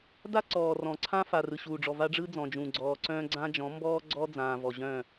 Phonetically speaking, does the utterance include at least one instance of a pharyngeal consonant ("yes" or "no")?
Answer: no